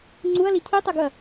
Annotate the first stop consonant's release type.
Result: click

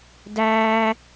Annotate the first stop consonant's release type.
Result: plain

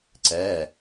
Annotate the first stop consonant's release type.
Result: click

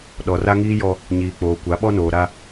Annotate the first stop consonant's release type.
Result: implosive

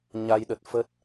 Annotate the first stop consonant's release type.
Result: implosive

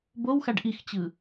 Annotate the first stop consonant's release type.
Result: plain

